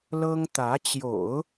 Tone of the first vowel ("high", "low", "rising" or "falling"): high